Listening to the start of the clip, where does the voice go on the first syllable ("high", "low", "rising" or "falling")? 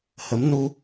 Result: rising